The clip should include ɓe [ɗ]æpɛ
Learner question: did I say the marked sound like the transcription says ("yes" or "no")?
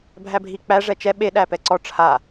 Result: yes